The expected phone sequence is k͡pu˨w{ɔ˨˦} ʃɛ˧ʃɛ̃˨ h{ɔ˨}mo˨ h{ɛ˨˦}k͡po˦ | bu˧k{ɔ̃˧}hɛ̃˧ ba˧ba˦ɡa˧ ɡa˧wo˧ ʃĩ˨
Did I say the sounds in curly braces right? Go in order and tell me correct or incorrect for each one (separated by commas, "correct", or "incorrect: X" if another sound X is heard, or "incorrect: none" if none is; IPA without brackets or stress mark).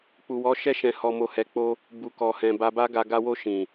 correct, correct, correct, incorrect: ɔ˧